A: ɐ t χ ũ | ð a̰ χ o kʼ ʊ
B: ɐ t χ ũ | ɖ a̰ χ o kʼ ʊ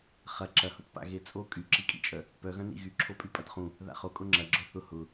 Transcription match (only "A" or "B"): A